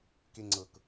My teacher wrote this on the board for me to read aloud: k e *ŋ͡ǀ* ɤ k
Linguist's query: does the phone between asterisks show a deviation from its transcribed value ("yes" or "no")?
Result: no